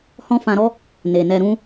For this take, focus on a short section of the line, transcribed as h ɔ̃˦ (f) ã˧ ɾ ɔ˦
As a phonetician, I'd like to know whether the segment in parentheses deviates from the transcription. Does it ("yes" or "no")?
no